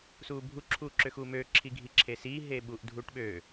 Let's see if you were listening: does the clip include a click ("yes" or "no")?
yes